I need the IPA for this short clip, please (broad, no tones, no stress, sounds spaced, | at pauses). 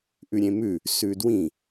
ʔ ʉ ɾʲ ẽ m ʉ | s ʉ d w ĩ